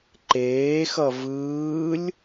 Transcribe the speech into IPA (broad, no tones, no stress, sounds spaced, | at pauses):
ǃ eː x ʌ v ɯː lʲ